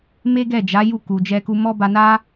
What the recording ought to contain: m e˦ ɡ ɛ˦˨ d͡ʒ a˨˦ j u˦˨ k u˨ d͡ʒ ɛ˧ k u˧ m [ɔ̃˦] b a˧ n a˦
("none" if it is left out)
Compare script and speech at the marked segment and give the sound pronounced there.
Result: ɔ˦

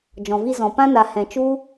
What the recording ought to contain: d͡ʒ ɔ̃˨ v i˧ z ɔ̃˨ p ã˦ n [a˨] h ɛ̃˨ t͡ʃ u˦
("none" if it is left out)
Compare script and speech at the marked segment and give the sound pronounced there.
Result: a˨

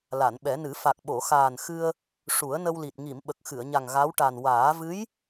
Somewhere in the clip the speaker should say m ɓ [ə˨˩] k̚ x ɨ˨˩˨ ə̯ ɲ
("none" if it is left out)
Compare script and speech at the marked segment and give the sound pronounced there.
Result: ə˨˩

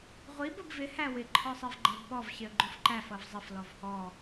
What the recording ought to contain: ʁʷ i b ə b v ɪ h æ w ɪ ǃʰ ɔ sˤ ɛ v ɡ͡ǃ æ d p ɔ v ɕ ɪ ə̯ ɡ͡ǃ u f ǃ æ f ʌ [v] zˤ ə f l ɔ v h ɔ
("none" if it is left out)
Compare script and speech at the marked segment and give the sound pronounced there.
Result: v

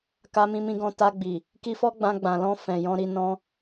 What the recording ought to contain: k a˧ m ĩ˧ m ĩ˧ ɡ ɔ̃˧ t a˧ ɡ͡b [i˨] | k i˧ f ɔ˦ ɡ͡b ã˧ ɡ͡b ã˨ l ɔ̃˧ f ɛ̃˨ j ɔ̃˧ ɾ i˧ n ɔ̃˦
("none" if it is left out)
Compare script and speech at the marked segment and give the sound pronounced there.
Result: i˨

